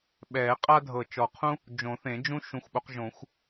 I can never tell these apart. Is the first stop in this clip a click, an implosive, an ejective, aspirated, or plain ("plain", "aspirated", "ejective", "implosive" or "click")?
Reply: implosive